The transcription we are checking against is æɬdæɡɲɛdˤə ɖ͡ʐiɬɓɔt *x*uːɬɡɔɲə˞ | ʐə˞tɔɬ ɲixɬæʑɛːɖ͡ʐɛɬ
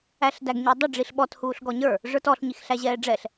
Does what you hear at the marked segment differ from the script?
yes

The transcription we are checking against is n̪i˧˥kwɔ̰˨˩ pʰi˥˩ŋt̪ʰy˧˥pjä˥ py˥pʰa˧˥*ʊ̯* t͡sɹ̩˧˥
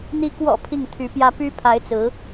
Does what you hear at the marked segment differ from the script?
yes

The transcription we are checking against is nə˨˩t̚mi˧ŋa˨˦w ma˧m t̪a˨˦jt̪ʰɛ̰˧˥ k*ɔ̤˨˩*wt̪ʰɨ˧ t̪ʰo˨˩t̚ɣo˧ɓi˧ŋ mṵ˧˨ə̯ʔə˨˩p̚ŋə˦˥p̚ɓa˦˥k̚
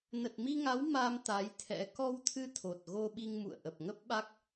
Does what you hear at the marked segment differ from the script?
yes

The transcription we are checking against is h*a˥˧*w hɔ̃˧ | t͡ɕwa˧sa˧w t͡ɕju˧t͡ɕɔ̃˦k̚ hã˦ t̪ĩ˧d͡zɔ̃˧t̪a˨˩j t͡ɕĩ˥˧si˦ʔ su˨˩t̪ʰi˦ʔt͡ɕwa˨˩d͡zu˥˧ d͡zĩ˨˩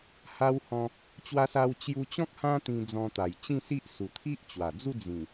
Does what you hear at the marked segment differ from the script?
yes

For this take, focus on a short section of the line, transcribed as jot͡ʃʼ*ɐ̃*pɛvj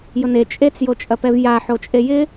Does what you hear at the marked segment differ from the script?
yes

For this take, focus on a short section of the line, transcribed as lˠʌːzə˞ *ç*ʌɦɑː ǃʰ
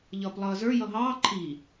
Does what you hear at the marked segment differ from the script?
yes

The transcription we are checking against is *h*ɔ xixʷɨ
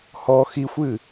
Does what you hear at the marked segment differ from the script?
no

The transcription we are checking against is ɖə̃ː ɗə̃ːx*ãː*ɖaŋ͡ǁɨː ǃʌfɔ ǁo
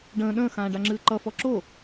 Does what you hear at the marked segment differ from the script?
no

